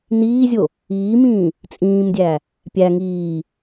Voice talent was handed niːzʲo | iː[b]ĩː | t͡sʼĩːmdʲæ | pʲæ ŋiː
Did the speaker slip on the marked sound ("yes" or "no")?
yes